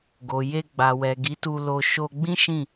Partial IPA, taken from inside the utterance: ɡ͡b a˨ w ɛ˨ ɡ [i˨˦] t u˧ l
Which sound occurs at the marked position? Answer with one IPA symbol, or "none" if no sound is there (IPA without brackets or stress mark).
i˨˦